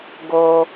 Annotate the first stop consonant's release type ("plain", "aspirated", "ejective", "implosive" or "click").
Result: plain